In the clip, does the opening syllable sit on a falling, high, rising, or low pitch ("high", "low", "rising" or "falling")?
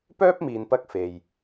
high